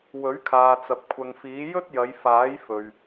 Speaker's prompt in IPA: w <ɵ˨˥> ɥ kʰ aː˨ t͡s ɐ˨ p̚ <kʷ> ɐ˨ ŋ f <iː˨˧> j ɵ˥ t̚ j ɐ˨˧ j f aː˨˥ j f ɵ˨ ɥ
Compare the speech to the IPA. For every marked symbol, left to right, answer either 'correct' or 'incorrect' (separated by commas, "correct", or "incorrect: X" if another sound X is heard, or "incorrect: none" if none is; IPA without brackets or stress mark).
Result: correct, incorrect: kʷʰ, incorrect: iː˨˥